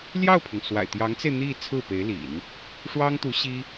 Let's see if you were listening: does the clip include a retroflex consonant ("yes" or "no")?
yes